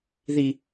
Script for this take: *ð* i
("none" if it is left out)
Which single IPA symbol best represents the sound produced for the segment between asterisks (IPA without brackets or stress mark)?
ð